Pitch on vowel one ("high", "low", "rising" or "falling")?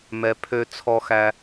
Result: low